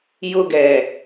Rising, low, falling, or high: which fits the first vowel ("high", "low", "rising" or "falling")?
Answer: high